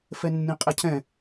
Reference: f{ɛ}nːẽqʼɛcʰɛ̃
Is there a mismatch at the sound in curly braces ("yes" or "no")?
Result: no